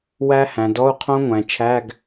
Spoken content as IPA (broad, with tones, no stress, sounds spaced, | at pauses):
w æ˦˥ h æ̃˩˧ d ɔ˧˥˧ u̯ qʰ õ˦˥ ŋʷ æ̃˩˧ t͡ʃʰ æ˧˥˧ ɡ